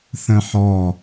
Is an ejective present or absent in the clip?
absent